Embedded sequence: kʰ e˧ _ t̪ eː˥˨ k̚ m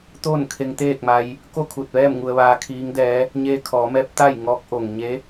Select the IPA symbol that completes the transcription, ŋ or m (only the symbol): ŋ